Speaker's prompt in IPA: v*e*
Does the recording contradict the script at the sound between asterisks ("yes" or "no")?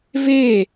no